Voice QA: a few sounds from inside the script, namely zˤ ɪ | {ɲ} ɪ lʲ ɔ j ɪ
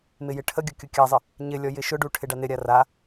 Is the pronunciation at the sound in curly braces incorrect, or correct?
correct